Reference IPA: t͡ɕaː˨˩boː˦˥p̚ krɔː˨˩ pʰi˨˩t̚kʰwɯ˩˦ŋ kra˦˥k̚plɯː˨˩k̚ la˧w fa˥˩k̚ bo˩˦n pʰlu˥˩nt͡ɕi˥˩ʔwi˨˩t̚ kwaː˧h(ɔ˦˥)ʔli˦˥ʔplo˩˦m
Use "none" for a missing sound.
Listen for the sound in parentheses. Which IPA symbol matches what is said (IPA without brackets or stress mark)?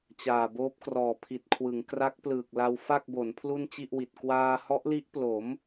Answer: ɔ˦˥